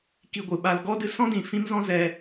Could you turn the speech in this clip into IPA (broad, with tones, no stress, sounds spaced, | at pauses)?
k i˧ ɡʷ ɨ˨ ɓ a˧ l ɡ ɔ˦ d ɨ˧ s ɔ̃˦ d ĩ˨ f ĩ˦ m z ɔ̃˦ z ɛ˧